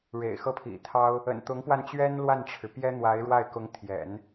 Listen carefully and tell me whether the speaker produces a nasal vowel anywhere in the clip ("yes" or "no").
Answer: no